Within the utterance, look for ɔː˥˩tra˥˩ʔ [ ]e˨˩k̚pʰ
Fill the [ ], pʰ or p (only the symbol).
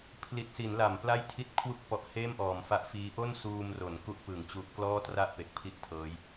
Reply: p